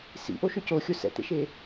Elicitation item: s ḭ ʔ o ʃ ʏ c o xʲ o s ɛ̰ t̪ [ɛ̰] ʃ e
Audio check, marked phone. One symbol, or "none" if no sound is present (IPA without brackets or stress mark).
ḛ